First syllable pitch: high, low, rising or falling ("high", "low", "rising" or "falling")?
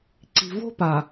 low